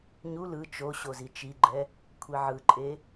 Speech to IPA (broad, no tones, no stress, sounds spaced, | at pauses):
ɲ u l ɯ t͡ʃ o ɕ o z i t͡ʃ i ɡ͡ǃ ɛ | kʷʰ i ʕ ɯ ǃʼ e